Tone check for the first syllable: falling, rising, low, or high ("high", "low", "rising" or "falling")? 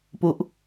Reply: falling